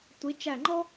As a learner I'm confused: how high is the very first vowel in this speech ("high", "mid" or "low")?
high